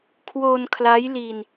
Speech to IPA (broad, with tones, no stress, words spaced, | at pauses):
kʰwo˧nkʰla˦˥jli˧n